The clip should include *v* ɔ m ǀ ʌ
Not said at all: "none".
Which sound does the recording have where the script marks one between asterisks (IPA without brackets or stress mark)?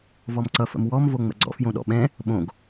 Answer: v